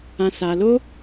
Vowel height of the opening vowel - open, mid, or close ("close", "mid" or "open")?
open